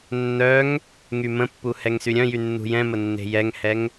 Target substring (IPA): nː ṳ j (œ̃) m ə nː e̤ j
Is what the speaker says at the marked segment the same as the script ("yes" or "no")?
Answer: no